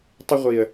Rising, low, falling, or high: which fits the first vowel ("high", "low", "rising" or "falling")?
high